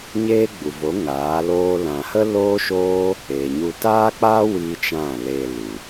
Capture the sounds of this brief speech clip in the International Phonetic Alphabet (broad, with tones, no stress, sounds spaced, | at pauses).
ɲ eː˦ ɡ͡b u˨ v o˨˦ ŋ aː˨˦ l oː˦ l ã˧ h ə˦ l oː˦ ʃ oː˦ | eː˨ ɲ u˧ t aː˦ k͡p aː˦ w iː˦ t͡ʃ ã˦˨ l e˧ l u˨